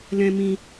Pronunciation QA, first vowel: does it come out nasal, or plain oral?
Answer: nasal